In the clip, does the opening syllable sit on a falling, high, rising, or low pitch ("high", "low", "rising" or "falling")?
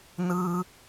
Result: low